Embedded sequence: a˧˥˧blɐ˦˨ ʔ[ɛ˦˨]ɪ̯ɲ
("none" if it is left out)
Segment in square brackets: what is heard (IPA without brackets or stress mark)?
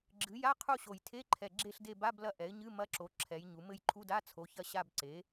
ɛ˩˥